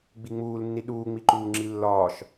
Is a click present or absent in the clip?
present